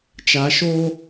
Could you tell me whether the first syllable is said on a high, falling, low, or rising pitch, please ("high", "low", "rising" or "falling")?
rising